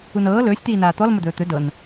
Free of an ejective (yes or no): yes